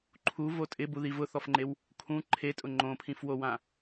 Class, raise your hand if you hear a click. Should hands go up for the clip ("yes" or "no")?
yes